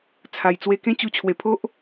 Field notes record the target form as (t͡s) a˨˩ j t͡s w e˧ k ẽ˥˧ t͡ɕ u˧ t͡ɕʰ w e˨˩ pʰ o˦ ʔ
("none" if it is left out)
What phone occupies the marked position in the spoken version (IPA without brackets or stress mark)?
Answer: t͡sʰ